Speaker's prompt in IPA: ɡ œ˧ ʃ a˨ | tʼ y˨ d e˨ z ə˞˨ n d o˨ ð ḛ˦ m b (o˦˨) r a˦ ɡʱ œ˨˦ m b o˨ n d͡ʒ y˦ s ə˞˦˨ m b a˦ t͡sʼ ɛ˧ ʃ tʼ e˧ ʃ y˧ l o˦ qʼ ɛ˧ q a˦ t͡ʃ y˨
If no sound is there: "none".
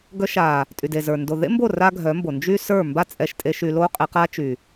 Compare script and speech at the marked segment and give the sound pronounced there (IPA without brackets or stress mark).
o˦˨